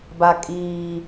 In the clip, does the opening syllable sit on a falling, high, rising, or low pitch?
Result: low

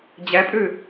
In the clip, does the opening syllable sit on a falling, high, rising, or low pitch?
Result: rising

